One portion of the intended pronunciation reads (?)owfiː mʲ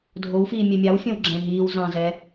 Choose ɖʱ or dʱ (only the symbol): dʱ